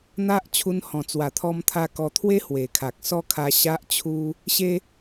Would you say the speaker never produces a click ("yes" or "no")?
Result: yes